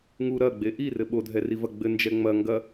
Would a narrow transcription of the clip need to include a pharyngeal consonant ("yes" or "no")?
no